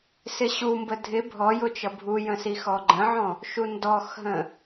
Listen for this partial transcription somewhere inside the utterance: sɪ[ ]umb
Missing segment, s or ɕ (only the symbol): ɕ